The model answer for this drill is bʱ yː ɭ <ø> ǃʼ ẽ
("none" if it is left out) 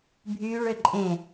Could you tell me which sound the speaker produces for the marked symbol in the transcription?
ø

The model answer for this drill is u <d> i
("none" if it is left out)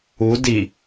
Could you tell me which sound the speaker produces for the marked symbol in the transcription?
d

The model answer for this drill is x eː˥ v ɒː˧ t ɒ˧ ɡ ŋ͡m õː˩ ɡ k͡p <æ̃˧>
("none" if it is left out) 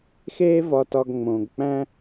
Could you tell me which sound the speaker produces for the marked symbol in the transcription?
æ̃˥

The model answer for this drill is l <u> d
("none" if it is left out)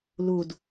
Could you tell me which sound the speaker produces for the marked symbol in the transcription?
u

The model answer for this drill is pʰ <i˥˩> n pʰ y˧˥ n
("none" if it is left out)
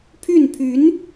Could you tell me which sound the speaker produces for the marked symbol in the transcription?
y˥˩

